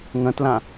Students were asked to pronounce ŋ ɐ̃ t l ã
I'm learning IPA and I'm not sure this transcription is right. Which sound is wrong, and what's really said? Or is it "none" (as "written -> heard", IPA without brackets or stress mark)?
none